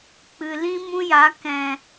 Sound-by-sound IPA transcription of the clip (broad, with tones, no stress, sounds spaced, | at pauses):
k͡p ɨ˨ l ĩ˦ m ũ˦ j a˨˦ k ɛ̃˨